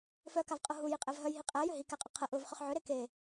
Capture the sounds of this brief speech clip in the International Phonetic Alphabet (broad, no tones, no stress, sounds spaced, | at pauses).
f œ k a v qʼ ʊ ɦ u j i qʼ ɛ v ɦ œ j ɦ i qʼ æ j ʏ ɦ i k æ qʼ ʊ qʰ ə ʔ ʊ v χ ʏ χ ʕ ʏ ɾ e k e